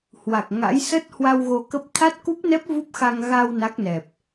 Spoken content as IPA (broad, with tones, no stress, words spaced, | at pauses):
hwa˨˩k̚ŋa̰˧˥j sə˦˥t̚hwa˧w ɣo˧kə˦˥p̚ t̪ʰa˦˥t̚ku˦˥p̚nɛ˦˥p̚ vu˦˥p̚xa˧ŋ ɣa˧w na˦˥k̚nɛ˨˩p̚